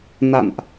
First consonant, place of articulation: alveolar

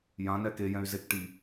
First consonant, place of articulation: palatal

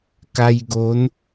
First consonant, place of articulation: velar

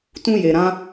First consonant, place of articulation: alveolar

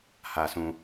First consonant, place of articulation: glottal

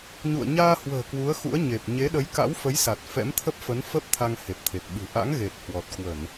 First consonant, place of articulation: palatal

